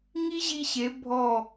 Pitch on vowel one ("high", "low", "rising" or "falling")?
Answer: high